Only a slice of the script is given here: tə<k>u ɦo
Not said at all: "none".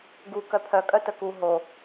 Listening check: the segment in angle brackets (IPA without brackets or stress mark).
k